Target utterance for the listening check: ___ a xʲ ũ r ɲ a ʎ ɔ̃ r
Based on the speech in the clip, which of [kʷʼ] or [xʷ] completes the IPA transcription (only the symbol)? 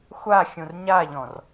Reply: xʷ